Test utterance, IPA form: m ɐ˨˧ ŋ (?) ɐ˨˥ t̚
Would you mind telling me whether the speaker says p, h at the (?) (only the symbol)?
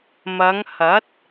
h